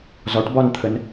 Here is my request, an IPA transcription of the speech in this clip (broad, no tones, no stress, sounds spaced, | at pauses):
z ɒ ʈ b ɒ n t̪ʰ ə n